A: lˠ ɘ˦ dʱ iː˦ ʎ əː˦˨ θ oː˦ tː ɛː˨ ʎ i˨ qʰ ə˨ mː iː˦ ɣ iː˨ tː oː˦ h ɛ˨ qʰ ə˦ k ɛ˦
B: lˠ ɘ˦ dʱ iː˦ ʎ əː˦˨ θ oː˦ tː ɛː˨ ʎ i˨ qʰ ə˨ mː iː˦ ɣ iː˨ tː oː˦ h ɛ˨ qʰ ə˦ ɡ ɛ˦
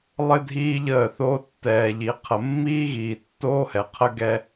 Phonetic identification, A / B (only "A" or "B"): B